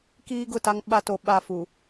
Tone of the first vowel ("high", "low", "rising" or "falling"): high